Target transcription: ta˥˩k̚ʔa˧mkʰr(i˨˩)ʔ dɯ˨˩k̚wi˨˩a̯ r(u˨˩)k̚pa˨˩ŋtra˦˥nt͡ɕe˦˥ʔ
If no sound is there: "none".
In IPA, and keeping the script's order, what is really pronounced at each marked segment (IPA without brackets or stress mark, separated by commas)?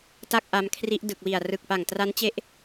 i˦˥, ɯ˨˩